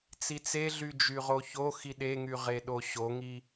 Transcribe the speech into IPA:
t͡sit͡seɮy d͡ʒyʁoçoxi ɗeŋyʁe ɗoɕoŋi

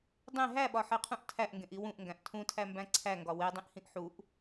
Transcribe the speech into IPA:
dˤẽ ɦæɓɒħeqʰũʔ tʰæʔŋɡẽʔi wũʔŋɡæ̃ʔ tʰũtʰæmbæ̃ ǀʰæŋɡɒ wedˤĩʔhĩʔ ħuʔ

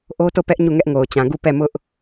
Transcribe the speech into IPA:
ʔo˦to˦˨pɛ˦ʔ ɲu˦˨ŋɛ˦ʔŋo˨ʊ̯t͡ɕã˨ ɡu˦˨pɛ˦˨mʊ˦ʔ

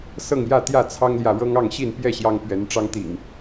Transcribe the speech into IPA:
sɤ˥˨ŋjä˥˨t̪jä˥˨ t͡sʰɑ˦ŋljä˨ ɻɤ˦ŋɑ˥˨ŋ ɕi˥˨npjɛ˥˨ ɕjɑ˦ŋpɥɛ˨˦nʈ͡ʂɑ˦ŋ t̪ḭ˨˩ŋ

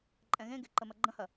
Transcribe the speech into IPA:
ǃʼɛ̃ɣẽɡe ǃəmɐɡ͡ǃə̃hɐ

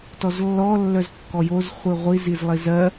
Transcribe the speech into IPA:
tɔzlːɔ lːœzkːɔjoz χʷiʁʷiz izlˠizɜ

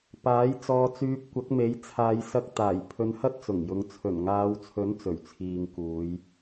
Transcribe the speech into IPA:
paː˨˥j t͡sɔː˧t͡syː˧p̚kʷɐ˨˥k̚me˨˥j t͡sʰaː˨˧jsɐ˧k̚t̪aː˨˩j pʰɵ˧nhɐ˥t̚t͡sʊ˨˩ŋjʊ˨˧ŋ t͡sʰɵ˨˩nŋaː˨˧wt͡sʰɵ˨˥n t͡sɵ˨˩ɥt͡sʰiː˨ŋkuː˨˧j

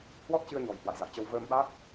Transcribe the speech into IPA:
hwɔ˦˥t̚t͡ɕɨ˧ə̯ɲɔ̤˨˩j hwa̰˧˨jza̰˧˨jt͡ɕə˧w vəː˧mɓa˦˥k̚

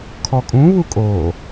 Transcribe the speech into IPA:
kʰɔkʼũβu kʼo

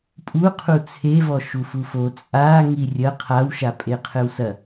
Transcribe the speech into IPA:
pʼuqʰu t͡sʰevɔ ʃufufo t͡sʼa ŋirʲɐ qʰawʃapʼe qʰɘwsɐ

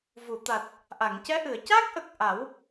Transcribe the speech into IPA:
vu˨˩˨t̪a˨˩t̚ | ʔa˨˩˨ŋcɛ˧˥ ʔɨ˨˩˨ə̯ca˦˥k̚ʔə˨˩k̚ ʔa˨˩˦w

